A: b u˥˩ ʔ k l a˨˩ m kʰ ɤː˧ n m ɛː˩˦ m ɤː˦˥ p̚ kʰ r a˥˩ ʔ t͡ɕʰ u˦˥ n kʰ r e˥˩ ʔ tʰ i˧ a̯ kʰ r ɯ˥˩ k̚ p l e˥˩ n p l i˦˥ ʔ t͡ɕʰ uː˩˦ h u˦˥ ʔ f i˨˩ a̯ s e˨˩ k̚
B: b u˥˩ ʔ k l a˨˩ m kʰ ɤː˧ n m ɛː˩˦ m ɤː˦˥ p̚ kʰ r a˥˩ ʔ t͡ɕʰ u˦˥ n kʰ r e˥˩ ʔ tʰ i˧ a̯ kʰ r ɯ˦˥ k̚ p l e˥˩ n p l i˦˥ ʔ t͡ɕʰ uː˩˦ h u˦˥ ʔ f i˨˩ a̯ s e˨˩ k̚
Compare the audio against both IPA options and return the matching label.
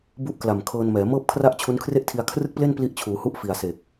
A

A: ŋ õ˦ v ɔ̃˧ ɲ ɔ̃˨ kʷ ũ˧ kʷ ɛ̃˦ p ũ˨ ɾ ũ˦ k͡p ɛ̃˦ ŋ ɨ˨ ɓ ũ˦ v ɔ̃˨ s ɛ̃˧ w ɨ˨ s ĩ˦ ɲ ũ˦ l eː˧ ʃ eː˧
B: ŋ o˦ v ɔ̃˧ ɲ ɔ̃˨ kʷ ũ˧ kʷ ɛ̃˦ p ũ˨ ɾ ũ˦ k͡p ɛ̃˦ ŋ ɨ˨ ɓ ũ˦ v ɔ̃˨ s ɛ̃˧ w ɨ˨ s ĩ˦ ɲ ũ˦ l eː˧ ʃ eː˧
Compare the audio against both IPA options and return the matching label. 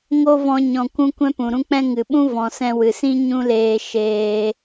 B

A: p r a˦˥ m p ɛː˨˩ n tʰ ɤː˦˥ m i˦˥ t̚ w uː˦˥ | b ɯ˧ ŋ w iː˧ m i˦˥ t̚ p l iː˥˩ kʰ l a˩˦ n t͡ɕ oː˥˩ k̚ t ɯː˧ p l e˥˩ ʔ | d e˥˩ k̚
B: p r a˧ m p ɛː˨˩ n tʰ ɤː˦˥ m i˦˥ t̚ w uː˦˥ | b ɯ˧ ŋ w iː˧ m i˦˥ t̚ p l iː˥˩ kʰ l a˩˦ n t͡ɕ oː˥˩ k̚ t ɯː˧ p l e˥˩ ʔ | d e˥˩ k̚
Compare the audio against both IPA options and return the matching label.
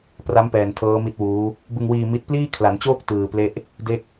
A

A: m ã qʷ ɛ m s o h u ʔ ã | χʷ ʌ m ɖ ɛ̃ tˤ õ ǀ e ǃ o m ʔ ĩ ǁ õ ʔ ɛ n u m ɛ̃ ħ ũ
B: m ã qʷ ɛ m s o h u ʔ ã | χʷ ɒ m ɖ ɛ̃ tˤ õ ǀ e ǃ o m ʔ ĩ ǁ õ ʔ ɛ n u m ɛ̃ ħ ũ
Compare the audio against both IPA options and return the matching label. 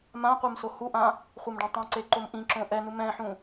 A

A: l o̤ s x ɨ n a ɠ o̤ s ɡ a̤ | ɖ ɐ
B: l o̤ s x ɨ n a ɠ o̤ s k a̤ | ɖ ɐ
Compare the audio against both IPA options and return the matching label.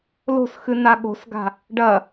A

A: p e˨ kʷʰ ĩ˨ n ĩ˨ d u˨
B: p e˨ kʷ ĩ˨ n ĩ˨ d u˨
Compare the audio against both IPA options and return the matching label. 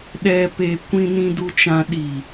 B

